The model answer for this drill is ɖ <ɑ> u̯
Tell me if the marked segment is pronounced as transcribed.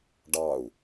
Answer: yes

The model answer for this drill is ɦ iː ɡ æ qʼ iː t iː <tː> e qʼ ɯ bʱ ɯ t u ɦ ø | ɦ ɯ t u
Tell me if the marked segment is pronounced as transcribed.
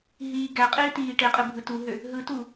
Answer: no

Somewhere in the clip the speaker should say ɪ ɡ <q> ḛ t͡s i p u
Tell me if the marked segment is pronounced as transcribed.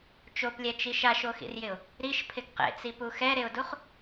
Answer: yes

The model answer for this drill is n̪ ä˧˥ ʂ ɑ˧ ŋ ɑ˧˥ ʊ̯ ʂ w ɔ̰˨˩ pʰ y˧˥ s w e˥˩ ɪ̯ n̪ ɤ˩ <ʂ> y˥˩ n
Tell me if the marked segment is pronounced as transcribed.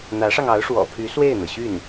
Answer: no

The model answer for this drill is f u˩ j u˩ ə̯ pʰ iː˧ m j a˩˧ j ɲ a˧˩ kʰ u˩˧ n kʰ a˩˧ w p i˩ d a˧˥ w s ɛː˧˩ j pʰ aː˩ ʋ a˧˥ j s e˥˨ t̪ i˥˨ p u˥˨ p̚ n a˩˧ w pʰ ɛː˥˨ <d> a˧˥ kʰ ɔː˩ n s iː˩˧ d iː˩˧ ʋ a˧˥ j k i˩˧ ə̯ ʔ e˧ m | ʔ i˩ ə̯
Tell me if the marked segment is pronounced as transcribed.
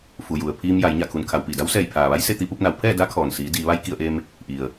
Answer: yes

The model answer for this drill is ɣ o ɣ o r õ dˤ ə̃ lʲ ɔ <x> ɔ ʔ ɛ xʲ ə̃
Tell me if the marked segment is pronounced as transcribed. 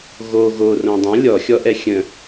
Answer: no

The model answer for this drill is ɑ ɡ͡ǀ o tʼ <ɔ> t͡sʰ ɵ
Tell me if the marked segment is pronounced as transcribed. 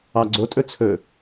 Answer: no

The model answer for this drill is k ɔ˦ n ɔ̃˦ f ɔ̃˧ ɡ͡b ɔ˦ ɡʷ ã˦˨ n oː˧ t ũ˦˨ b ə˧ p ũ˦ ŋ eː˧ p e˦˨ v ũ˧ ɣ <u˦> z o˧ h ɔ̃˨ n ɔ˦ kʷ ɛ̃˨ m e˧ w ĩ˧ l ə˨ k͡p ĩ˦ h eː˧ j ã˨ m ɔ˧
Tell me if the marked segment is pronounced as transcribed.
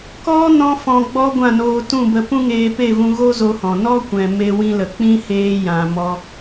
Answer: no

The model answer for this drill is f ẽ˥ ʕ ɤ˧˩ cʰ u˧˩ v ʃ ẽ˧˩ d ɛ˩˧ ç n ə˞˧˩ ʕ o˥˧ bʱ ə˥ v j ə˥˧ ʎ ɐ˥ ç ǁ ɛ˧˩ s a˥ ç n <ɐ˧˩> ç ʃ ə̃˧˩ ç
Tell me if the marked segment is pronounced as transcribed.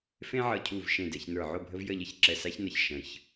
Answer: yes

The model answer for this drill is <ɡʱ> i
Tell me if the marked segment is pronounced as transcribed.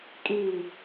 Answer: no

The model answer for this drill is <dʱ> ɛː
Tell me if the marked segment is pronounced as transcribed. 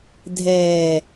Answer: yes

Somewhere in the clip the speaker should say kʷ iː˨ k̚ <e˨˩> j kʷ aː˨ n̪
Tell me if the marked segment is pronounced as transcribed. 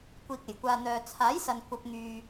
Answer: yes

